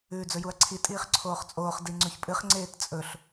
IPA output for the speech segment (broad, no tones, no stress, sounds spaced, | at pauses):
ʉː d͡z ɵ j u ɐ̯ ǀʰ i tʼ iː χ ǀʰ oː χ t͡sʼ oː χ d i ŋ͡ǀ ʉ ç pʼ ɨ χ ŋ͡ǀ eː t t͡sʼ ɵ ɬ